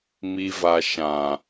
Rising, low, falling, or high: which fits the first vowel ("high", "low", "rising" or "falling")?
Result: low